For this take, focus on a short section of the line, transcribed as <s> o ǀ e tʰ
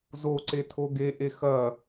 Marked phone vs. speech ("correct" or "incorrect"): incorrect